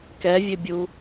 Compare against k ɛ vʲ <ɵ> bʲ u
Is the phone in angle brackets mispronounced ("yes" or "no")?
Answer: yes